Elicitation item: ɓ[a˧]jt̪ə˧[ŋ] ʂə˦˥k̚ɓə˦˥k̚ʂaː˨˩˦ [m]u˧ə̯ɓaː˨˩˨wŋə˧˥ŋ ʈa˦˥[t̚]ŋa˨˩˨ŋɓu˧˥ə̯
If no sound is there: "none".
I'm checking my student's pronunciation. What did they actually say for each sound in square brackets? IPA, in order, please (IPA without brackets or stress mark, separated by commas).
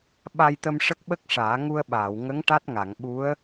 a˧, m, ŋ, t̚